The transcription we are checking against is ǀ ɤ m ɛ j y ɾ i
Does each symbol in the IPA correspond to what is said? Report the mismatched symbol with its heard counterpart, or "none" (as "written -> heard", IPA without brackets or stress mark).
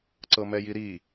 y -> i